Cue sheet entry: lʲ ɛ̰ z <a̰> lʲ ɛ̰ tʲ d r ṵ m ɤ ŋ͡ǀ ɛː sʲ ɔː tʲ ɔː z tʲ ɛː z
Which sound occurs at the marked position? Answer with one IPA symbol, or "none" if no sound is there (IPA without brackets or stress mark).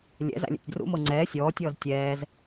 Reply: a̰